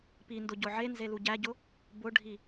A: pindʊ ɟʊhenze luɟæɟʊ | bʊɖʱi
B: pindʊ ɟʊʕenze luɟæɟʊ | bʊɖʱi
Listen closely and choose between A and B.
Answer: B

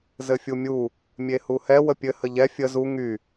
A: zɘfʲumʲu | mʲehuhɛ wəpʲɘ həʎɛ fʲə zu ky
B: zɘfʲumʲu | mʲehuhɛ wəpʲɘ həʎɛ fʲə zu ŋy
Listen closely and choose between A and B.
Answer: B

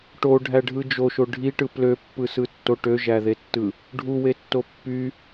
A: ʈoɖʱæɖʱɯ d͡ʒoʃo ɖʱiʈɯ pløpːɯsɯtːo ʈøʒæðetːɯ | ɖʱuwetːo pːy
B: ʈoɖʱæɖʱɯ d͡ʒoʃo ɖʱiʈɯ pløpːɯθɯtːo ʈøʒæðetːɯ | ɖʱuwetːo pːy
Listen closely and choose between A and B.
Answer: A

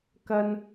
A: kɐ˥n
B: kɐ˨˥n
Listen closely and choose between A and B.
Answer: A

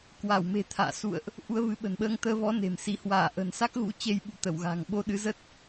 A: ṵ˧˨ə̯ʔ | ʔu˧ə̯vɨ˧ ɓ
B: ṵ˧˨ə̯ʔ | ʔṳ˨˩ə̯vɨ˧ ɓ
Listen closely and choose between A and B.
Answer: A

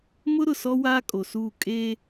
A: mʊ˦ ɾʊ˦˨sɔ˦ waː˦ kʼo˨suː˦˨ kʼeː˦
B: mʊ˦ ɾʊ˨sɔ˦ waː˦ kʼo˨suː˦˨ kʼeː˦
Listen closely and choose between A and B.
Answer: B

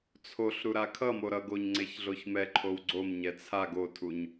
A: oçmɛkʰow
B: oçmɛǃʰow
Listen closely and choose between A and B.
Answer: B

